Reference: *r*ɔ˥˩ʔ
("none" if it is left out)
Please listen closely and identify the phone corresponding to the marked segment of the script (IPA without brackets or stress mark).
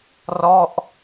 r